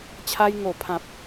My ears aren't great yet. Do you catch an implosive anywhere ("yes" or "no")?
no